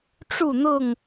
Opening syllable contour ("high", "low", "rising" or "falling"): falling